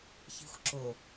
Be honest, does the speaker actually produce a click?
yes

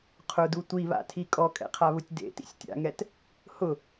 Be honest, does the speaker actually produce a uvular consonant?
yes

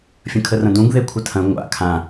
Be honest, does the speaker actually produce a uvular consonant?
no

